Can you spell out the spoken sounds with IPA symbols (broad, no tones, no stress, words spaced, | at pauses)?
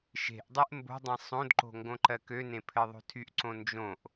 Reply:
ʃe̤ʔdˤeʔ mbo̤dˤẽ sˤõdǃo̤ ŋɡõǃɜkønẽ pʰɘðˤo̤tʰyʔǀõ nd͡ʒõʔ